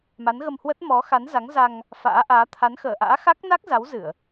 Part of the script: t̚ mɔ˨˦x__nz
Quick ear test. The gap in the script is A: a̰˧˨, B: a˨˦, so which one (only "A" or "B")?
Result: B